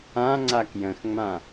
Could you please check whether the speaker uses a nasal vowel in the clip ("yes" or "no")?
yes